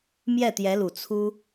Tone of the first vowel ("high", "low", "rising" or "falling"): falling